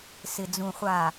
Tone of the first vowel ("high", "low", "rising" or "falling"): low